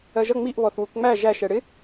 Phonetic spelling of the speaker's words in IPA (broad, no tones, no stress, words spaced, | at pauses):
ɜʒʌ ŋ͡miʔ βɔθwukŋ͡mæ ʒæ ʃɛɽɪ